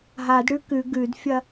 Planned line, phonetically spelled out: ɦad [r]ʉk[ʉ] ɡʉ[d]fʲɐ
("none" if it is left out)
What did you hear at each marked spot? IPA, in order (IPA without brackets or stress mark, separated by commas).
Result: ɽ, ʉ, d